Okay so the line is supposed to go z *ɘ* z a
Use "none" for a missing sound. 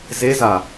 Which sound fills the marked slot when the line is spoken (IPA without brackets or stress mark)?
e